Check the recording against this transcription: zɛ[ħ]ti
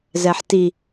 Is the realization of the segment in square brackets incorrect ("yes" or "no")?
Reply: no